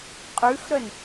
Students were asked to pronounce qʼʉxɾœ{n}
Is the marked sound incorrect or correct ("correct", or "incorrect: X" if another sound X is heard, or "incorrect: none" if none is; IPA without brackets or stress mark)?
correct